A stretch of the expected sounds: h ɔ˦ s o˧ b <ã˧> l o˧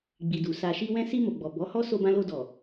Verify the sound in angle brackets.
correct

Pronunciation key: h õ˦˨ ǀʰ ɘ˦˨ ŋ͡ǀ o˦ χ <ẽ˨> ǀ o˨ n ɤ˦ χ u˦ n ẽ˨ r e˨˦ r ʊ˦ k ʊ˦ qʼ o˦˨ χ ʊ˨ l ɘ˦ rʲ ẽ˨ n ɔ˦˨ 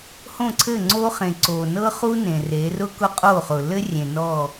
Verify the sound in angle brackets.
correct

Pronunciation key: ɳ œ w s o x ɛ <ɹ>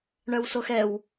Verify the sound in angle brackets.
incorrect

